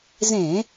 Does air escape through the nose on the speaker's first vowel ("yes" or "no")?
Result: yes